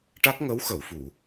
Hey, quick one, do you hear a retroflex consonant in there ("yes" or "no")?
yes